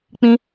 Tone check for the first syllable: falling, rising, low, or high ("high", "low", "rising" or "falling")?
high